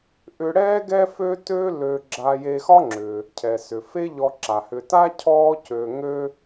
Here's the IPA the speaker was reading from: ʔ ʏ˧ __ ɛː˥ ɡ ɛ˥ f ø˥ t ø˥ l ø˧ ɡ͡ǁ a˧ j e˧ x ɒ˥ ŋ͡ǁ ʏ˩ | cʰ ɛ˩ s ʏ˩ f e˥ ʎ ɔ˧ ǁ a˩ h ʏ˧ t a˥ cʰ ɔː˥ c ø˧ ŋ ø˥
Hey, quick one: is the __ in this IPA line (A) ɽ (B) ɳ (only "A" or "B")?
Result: A